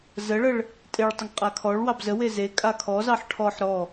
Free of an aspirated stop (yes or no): no